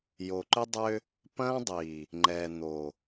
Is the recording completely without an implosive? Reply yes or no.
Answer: yes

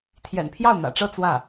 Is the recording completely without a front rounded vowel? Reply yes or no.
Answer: yes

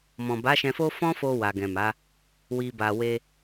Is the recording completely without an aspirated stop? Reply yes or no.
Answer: yes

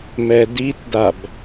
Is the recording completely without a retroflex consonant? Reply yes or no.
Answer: yes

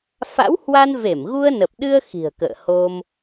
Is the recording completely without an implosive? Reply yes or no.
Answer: no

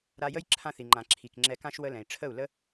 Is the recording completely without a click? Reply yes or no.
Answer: no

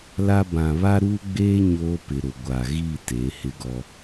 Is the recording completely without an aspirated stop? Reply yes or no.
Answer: yes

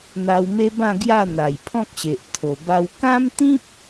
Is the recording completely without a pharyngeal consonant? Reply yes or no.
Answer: yes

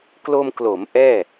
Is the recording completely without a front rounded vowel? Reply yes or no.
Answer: yes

